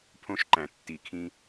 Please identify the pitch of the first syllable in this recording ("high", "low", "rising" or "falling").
high